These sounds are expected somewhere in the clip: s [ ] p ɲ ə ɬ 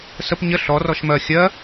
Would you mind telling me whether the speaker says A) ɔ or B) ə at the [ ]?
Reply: B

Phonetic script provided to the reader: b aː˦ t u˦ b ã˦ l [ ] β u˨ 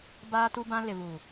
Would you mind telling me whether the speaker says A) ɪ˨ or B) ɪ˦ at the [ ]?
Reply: A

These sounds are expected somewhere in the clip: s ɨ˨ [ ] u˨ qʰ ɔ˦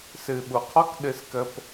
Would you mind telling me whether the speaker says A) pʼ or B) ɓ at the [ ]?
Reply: B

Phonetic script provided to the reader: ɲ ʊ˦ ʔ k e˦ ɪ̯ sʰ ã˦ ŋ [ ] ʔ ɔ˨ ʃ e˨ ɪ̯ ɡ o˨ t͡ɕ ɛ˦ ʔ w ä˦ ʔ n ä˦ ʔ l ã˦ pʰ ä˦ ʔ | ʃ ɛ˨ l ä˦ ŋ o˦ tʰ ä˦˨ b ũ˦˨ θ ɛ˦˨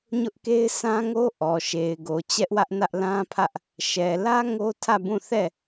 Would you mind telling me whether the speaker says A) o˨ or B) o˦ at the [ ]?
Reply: B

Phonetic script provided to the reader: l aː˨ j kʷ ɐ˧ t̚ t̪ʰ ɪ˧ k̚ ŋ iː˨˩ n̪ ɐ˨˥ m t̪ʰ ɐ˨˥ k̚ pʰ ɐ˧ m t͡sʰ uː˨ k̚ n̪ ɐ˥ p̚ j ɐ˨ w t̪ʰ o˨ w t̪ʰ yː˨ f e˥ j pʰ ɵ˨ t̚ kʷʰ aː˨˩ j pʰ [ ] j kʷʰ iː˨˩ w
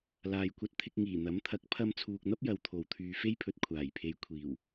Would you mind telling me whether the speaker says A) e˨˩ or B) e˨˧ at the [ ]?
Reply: B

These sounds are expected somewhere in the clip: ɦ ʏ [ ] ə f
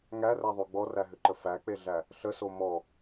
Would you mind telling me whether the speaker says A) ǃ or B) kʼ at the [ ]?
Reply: A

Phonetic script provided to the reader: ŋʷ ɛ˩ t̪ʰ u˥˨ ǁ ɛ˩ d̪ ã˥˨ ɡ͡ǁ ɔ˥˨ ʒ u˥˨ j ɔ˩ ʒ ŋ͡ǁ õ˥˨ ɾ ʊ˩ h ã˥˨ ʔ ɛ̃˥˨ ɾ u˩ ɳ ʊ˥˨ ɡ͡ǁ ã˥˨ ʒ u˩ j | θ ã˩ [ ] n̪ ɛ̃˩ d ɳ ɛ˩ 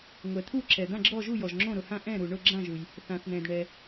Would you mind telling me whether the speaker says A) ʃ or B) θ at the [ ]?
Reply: B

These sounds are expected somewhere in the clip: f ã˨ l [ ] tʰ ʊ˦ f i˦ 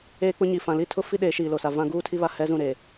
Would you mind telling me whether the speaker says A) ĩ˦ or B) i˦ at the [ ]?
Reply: B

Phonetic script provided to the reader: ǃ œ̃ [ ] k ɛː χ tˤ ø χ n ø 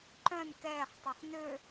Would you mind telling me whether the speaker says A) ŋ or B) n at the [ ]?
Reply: B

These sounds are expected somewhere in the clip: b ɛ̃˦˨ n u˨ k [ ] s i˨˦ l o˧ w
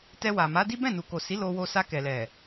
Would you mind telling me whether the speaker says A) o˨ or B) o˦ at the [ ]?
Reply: A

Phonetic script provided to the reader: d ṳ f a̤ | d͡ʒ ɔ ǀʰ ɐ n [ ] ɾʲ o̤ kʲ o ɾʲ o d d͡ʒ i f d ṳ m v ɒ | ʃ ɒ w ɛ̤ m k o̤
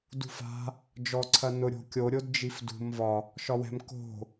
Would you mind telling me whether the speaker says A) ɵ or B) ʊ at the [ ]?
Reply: B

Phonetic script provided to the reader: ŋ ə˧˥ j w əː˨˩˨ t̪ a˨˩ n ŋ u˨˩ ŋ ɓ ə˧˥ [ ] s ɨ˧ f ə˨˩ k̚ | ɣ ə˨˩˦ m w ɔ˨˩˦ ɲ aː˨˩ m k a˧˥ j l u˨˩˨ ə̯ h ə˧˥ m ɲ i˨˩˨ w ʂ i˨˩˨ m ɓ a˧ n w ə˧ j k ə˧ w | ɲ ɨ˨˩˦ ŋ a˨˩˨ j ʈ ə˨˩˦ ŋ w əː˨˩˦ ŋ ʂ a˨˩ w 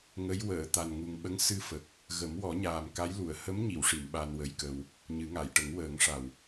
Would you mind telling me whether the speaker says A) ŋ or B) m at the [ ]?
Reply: A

